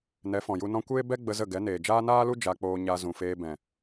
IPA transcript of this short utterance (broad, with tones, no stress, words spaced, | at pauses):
nɛ˨˦fɔ̃˨ju˧ nɔ̃˧kʷeː˦ bɛ˦ ɡ͡bə˧zə˦˨ ɡɛ˨˦neː˨d͡ʒaː˦ naː˦lu˦ d͡ʒa˧k͡poː˧ ɲa˧zũ˨feː˧ bɛ̃˨